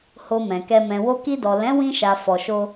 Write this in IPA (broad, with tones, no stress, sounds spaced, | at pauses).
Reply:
h o˧ m ɛ̃˨ k ɛ˧ m ɛ̃˨ w o˧ k i˧ d ɔ˨ l ɛ̃˨˦ w ĩ˧ ʃ a˨ f ɔ˨ ʃ o˧